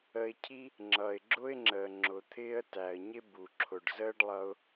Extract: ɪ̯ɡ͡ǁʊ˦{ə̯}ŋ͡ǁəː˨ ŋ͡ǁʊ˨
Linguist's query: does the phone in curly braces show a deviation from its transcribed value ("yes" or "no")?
yes